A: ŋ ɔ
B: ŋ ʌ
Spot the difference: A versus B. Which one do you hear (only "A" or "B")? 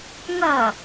B